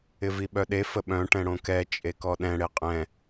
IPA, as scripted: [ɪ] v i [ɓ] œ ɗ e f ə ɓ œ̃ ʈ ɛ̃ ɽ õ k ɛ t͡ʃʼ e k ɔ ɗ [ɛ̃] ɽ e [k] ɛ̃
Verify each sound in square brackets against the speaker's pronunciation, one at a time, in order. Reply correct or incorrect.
correct, correct, correct, incorrect: qʼ

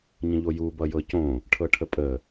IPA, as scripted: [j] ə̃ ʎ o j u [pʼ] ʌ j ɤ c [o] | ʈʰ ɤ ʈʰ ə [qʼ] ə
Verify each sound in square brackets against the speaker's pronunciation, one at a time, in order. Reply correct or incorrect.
incorrect: ɲ, incorrect: b, incorrect: õ, incorrect: pʼ

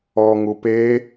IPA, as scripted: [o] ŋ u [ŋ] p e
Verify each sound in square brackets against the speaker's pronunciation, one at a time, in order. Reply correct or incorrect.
incorrect: ɔ, incorrect: none

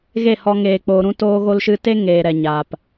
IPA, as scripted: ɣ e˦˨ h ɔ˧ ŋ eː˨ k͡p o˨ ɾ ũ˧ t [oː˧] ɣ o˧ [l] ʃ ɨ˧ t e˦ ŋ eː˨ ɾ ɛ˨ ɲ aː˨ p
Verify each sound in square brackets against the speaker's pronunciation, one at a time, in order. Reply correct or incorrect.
correct, correct

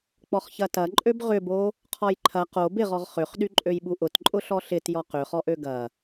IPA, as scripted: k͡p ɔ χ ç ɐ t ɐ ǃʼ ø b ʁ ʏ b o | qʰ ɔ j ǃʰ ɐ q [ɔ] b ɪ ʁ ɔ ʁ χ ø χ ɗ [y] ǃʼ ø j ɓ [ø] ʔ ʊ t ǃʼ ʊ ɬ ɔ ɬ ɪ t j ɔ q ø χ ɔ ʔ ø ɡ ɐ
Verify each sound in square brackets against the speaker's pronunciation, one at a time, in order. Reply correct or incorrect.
incorrect: o, correct, incorrect: u

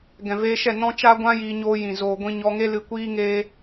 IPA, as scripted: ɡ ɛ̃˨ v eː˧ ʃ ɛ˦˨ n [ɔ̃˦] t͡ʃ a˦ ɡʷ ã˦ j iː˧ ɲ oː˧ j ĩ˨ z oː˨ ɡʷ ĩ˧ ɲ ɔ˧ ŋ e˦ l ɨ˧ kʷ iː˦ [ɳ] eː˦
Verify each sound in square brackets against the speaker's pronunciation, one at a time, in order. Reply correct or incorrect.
correct, incorrect: ŋ

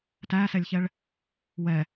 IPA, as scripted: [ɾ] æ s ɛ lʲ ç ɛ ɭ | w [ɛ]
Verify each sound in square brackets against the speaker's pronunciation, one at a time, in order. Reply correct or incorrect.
incorrect: t, correct

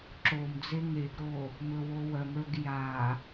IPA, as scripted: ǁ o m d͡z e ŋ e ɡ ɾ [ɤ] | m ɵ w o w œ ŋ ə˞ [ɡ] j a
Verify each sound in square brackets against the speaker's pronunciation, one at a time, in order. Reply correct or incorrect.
incorrect: o, correct

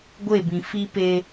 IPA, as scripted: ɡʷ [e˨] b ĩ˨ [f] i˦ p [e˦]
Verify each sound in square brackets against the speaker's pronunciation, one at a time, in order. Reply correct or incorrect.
incorrect: e˦˨, correct, correct

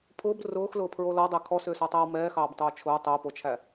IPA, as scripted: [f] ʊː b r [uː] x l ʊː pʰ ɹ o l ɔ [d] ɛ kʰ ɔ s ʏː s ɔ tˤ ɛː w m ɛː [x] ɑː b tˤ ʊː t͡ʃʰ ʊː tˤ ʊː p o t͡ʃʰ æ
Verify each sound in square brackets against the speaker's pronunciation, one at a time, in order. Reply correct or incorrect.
incorrect: pʰ, incorrect: ʊː, incorrect: dˤ, correct

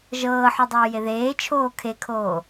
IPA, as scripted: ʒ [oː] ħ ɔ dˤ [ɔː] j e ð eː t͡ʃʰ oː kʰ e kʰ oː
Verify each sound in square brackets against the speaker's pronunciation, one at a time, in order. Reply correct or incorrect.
incorrect: ɤː, incorrect: oː

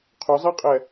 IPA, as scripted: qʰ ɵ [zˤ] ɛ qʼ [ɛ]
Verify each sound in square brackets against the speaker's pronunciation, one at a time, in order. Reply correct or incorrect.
correct, correct

